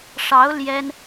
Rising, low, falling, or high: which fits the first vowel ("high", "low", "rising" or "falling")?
rising